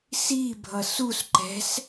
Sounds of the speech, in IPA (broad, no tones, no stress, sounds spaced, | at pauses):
s i bʱ ʌ s u s ǃ ɛ̤ s